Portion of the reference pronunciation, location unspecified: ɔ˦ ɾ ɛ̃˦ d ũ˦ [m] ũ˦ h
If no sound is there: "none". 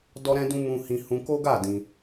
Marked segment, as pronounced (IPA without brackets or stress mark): m